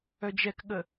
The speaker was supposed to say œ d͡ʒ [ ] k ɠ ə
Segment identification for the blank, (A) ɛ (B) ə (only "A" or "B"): A